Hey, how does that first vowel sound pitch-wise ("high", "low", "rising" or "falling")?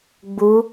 rising